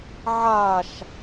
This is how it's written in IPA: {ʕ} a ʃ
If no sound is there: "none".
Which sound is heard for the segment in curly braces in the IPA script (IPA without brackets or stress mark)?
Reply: ʕ